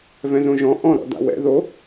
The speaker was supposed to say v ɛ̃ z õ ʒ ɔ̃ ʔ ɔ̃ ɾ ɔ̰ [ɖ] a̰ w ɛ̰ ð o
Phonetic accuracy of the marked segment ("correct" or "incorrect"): incorrect